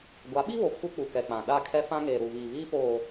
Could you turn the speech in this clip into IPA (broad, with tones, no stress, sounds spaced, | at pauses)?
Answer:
ɡʷ a˨˦ ɓ i˦ β o˨ kʰ u˦ k͡p u˨ k ɛ˨ k͡p ã˨ ɗ a˦˨ kʰ ɛ˦ f ã˦ ŋ eː˨ ɾ u˨ β iː˨ β iː˦ p oː˨